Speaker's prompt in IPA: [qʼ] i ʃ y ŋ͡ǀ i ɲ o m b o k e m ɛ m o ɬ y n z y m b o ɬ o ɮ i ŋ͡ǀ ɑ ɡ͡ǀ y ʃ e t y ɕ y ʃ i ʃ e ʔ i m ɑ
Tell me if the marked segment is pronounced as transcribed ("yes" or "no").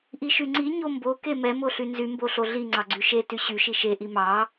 no